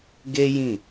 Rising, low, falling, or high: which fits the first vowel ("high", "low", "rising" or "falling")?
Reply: high